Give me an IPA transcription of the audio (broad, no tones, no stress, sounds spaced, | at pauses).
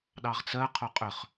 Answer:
ɗ ɑ ʁ t͡s ɜ qʰ o qʼ ʏ χ